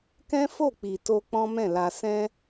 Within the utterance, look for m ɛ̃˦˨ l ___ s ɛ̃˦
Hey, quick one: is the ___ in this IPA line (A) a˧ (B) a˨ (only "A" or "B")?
A